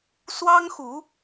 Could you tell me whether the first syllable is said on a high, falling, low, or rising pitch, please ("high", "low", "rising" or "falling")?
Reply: high